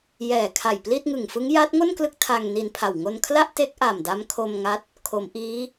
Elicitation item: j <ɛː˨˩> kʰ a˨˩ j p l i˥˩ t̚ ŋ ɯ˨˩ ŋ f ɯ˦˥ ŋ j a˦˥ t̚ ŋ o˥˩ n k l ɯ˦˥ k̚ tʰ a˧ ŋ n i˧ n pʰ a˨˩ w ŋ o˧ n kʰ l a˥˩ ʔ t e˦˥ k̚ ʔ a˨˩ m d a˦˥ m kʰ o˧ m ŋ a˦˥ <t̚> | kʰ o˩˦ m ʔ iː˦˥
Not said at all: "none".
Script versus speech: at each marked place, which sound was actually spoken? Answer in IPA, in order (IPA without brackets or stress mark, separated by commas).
ɛː˨˩, t̚